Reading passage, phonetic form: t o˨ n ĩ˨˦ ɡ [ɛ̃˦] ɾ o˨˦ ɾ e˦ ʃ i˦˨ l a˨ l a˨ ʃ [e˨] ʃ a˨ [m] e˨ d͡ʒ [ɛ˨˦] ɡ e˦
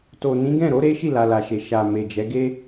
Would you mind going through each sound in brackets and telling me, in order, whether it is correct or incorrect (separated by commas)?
incorrect, correct, correct, correct